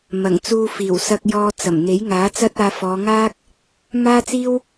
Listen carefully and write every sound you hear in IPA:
m ɐ˨˩ ŋ t͡s uː˧ f iː˨˩ w s ɐ˧ k̚ j ɔː˧ t͡s ɐ˨˩ m n̪ e˨˥ j ŋ aː˨˥ t͡s ɐ˥ t̚ aː˧ f ɔː˨˧ ŋ aː˥ k̚ | m aː˥ t͡s iː˥ w

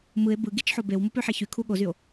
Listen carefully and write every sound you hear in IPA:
m ɯ e̯ b ɯ ɡ i t͡ʃ ħ o b e w m u p ø ħ e ç y kʰ u ɠ o z y o̯

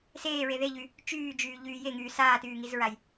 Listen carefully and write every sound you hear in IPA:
s eː ɹ e ð e ʎ y | t͡ʃ yː d͡ʒ yː ʎ yː j e ŋ yː s aː t yː ŋ i z ɹ a j

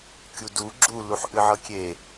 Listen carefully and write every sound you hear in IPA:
kʲ u d u ɡ͡ǁ u l u ħ ʔ ɨ ʕ ɤ kʲ e

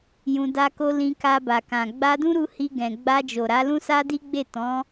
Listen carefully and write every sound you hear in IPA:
j ũ˧ d a˦ k o˦ l ĩ˧ k a˧ b a˨ k ã˨ ɡ͡b a˧ d ũ˦ ɾ u˧ h i˧ ɡ ɛ̃˨ ɡ͡b a˧ d͡ʒ o˨ ɾ a˨˦ l ũ˦ s a˦ d i˦ ɡ͡b e˦˨ t ɔ̃˨˦

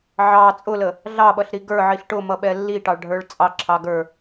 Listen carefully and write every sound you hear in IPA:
ʕ ɑ t͡sʼ ʊ l ə | ɮ ɑ ɓ ʌ ɬ ɾ i ɡ ə˞ ʕ i ɬ ʈ ʊ m ʌ ɓ ɛ lː i ʈ ɑ ɭ ɖʱ ə˞ ɭ t͡sʼ ɑ ǁʰ ɑ ɡ ə˞

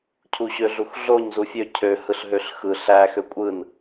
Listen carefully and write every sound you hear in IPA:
cʰ u ɕ ø ɮ u x ɮ o ɲ z u fʲ ø cʰ ø h ɯ ɬ ɦ ø ɬ x ɯ ɬ æ x ø kʷʼ ɯ n

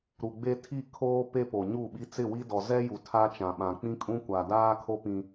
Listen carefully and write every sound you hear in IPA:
ɾ u˨ ɡ͡b e˦ tʰ i˦˨ kʰ oː˦ p e˦ p o˨ ɲ u˦˨ ɓ i˦ t͡s ɪ˦˨ w i˦ d ɔ˨ z ɛ˦ j u˨ tʰ a˦ t͡ʃ ã˨ ɓ ã˨ k͡p ĩ˦ kʼ ũ˦ kʷ a˨ d aː˦ kʰ o˦ p ĩ˦

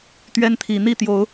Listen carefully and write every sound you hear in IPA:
t̪ ɥ ɛ˦ n t̪ʰ i˨˩ n̪ i˥˨ t̪ j o˨˦ ʊ̯

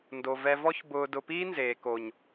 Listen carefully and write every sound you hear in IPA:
n d o˨ v ɛ˧ v ɔ˦ ç b ʊː˧ d ʊ˧ p iː˦ n z eː˨ k o˨ ɲ

